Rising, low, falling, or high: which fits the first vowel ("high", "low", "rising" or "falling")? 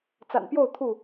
low